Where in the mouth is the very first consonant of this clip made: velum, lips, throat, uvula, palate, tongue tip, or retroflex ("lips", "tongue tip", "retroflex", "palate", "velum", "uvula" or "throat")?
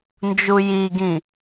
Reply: tongue tip